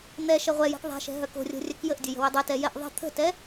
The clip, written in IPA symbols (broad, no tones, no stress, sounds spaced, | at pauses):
n̪ ɛ ʃ ɛ ʁʷ ɛ j ɛ̤ k ðˤ ɛ̤ ʃ ɛ̤ ɦ œ k o̤ rʲ o̤ rʲ œ k j ə ʔ dʲ ə j ə̤ w ø dˤ ɛ t ɛ j ɛ ʔ ðˤ ə̤ t̪ʰ ə̤ t ɛ